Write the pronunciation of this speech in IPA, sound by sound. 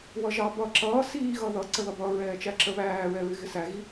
w ʌ ʒ ɑ b ʌ ǁ ʌː s iː ɣ ʌ ð ʌ ǀ ə ð ʌ b ʌː ɹ ɛː t͡ʃ æ ǁ ə β æː ɹ ɛ ɹ ɪ ɣ ɪ s æ ɣ i

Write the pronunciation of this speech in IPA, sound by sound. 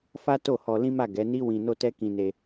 f a˦ t o˦˨ h ɔ˧ l ĩ˦ m a˦˨ ɡ ɛ˨˦ n i˦ w ĩ˧ n o˦ t ɛ˦ k ĩ˧ n e˧

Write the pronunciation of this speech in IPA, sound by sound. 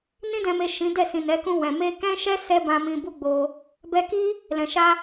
n ĩ˧ d ɛ̃˨ m e˨ ʃ ĩ˨˦ d ɛ˦˨ s ĩ˨ n ɛ˨˦ k ũ˧ w ɛ̃˨ m e˧ k ɛ̃˦ ʃ ɛ˦ s ɛ˦ b ã˧ m ĩ˧ b u˦ ɡ͡b o˧ | b ɛ˧ k i˦ | l ɛ̃˨ ʃ a˧

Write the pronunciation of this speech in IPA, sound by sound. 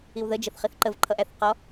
i w ð ə d͡ʒ ə θ χ i θ ǃ ə v ǃʰ ʌ ʔ æ θ q ɔ

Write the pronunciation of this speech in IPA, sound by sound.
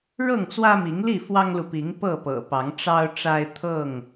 ɻ ɤ˥˨ ŋ t͡s w ä˦ m i˨˦ ŋ l i˥˨ f w ɑ˦ ŋ l u˨ p i˨˦ ŋ p ɤ˥˨ p ɤ̰˨˩ p ɑ˨˦ ŋ ʈ͡ʂ ɑ˦ ʊ̯ ʈ͡ʂ a˦ ɪ̯ t̪ʰ ɤ˥˨ ŋ

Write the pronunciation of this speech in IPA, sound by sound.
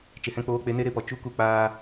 t͡ʃ e˨ h ɛ̃˧ k͡p oː˧ k͡p e˧ n e˦ ɾ e˦ p ɔ˨ t͡ʃ u˦ k u˦ k͡p aː˦

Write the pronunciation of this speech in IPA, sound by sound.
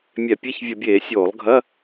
mʲ ɛ˧˩˧ pʲ ɛ˧˥˧ ç vʲ ə˧˩˧ bʲ eː˧˩˧ sʲ oː˧˩˧ lˠ ɡʱ ɐ˧˥˧

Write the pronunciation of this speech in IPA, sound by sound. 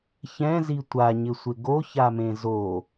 ç ɛ̃ z i tʷ a ɲ ɪ sʷ ɪ ɡ o ç a m ẽ z o

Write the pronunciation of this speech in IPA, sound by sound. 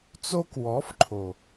t͡s o˧ k w ɔ˨˦ f ǃʰ o˨

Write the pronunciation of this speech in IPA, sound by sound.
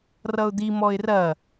r ʌ ʊ̯ d̪ i m ɔ ɪ̯ r ɐ

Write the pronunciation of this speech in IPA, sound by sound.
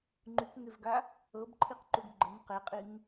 ŋ͡ǃ y k ŋ e v ɡ a | ɤ b ǃʰ i q ǃ u ɡ ɡ͡ǃ ə n q e qʼ i ŋ

